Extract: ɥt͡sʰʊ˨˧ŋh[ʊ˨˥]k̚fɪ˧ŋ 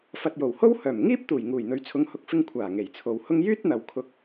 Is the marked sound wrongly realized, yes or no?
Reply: no